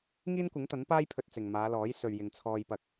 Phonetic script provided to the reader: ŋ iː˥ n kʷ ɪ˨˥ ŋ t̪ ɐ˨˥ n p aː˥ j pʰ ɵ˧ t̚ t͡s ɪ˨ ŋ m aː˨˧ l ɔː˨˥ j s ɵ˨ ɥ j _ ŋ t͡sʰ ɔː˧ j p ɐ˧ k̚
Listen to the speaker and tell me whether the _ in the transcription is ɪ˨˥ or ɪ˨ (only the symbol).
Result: ɪ˨